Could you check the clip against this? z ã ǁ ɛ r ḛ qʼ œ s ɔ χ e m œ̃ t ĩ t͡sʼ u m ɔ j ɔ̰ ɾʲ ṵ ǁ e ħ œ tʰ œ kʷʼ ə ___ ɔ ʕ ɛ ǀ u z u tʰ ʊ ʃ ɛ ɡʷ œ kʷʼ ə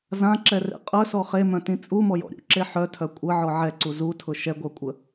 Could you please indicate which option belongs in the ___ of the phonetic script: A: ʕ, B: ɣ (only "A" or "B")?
A